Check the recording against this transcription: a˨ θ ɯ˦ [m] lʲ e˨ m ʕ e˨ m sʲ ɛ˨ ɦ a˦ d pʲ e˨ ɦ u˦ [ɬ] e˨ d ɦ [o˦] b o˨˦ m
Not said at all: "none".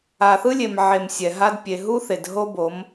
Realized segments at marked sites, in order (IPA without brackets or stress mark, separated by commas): none, θ, o˦